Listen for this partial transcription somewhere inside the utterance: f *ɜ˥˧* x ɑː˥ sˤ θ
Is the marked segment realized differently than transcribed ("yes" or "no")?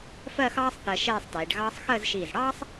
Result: no